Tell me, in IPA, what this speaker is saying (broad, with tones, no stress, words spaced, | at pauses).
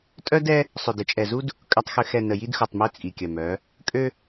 tʼœ˦dɛ˦ | sˤø˨də˨t͡ʃʼɛ˨zu˦d | kʼœ˨tˤxø˨xɛ˨ nə˨ji˦dxu˨tˤmø˦ t͡sʼi˨kʲœ˨mœ˨˦ | kʼø˦